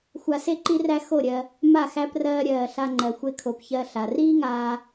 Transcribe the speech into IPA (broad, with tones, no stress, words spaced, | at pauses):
xʷa˧se˦ǃi˦ræ˦ xo˦˨ɾʲɜ˧ | ma˦˨ xæ˧prɜː˧ ɾʲɜː˨ ɬa˧ŋ͡ǃɜ˨ xʷe˧kʰo˨p çɜ˧ɬa˨ riː˦ŋaː˧